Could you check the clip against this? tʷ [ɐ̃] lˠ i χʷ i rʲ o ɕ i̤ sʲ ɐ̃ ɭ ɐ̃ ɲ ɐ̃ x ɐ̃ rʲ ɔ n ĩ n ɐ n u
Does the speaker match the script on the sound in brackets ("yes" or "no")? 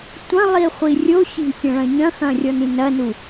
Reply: yes